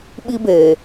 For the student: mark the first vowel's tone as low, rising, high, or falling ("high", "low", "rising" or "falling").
high